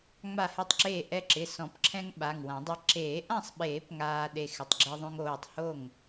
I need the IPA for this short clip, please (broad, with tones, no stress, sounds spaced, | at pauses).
ŋ͡m a˥˩ h ɪ˥˩ tˤ ǁ eː˥˩ ʔ ɛ˧ ǁ ɪ˩˧˩ s ɔ̃˨˩˦ p ǁʰ ɛ̃˧ ŋ ɓ a˩˧˩ ŋ w ã˨˩˦ dˤ a˧ ǁ eː˨˩˦ ʔ ã˥˩ sˤ ɓ eː˨˩˦ p ŋ aː˧ ɗ e˧ x ɪ˩˧˩ tˤ ɡ͡ǁ e˧ ðˤ õ˧ ŋ oː˩˧˩ tˤ h o˥˩ ŋ